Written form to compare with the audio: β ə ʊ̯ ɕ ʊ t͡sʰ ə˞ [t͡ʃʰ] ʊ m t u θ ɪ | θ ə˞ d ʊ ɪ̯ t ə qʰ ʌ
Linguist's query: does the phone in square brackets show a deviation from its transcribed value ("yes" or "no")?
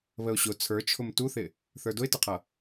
no